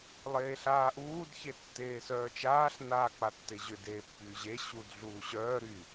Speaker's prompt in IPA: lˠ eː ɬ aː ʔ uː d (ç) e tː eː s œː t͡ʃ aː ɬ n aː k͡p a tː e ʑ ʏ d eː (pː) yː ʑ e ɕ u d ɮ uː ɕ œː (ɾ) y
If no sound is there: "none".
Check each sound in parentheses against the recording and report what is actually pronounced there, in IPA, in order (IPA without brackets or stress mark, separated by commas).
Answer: ç, pː, ɾ